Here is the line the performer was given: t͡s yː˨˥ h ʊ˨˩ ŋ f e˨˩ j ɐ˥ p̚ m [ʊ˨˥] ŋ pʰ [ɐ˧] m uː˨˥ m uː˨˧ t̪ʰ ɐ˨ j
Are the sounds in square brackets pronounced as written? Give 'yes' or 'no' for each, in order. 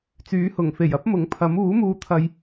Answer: yes, no

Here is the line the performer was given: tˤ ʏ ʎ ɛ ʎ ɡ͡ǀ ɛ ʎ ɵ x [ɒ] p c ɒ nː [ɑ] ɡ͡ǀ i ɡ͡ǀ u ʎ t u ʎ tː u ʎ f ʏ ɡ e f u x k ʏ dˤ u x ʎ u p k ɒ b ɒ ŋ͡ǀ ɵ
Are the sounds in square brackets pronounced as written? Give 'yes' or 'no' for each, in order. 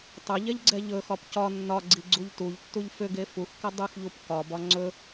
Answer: yes, no

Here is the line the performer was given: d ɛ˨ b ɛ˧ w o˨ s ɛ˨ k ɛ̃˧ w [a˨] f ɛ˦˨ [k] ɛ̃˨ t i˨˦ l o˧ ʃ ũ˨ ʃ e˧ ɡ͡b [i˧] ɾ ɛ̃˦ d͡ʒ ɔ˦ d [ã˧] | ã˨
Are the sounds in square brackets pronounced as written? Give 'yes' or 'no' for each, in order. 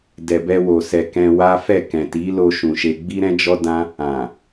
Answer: no, yes, no, no

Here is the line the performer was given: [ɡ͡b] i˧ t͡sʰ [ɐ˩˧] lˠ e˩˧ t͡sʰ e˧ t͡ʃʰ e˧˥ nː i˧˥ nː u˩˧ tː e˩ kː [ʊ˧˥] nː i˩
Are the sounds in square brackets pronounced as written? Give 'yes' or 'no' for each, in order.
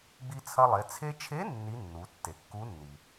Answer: yes, no, no

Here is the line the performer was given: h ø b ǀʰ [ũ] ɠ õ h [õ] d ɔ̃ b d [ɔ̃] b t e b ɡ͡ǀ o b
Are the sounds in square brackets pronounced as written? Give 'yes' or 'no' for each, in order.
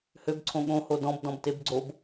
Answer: no, no, yes

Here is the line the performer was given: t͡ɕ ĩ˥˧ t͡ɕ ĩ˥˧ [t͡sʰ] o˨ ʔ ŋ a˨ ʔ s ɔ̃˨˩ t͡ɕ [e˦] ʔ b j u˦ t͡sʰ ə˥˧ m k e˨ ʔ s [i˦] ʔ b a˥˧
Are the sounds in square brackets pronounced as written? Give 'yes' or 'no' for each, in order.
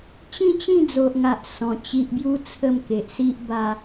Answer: no, no, yes

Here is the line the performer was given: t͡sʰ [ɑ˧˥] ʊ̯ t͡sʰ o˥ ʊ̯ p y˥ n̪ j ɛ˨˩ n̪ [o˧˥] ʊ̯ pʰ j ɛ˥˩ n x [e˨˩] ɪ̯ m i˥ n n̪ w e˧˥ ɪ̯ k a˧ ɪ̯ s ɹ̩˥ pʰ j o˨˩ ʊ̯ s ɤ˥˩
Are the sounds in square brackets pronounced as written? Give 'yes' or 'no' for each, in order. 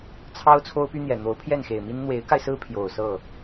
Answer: no, yes, yes

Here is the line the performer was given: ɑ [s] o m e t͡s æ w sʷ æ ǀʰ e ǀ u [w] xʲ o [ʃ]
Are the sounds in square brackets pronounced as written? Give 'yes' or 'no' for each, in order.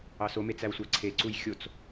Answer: yes, no, no

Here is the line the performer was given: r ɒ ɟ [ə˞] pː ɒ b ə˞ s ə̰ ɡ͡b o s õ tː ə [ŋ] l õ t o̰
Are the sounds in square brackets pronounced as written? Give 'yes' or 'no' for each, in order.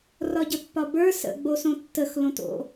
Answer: no, no

